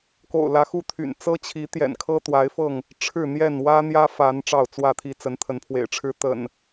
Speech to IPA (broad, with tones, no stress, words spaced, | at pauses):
ko̰˨˩ʊ̯lä˨˦xu˥˨t̪ʰy̰˨˩n t͡sɤ˦t͡ɕʰi˨˦ t̪jɛ̰˨˩nkʰɤ˦t̪wa˨˦ɪ̯fɤ˥˨ŋ | ʈ͡ʂʰɻ̩˥˨n̪jɛ˥˨n wä˦n̪jä˦ fa˨˦n ʈ͡ʂɑ˥˨ʊ̯t͡swä˥˨t̪ʰi˥˨ t͡sə˨˦nt̪ʰə˨˦npʰwḛ˨˩ɪ̯ʈ͡ʂʰɻ̩˦ t̪ə̰˨˩n